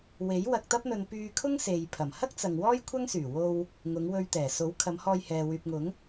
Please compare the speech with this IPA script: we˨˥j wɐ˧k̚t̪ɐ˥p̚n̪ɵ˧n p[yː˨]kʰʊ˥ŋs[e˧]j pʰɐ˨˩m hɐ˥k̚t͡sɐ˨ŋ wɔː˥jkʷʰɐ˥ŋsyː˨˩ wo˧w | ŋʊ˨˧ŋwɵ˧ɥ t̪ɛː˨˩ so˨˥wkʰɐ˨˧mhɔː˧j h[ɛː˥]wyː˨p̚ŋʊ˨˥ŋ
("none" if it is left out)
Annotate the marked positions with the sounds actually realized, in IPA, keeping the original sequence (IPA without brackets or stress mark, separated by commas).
yː˧, e˨, ɛː˨